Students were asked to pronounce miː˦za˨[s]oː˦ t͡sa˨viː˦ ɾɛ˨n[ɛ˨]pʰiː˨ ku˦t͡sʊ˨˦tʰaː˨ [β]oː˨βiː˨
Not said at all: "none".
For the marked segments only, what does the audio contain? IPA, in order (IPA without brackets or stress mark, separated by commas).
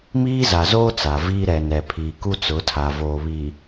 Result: z, ɛ˨, v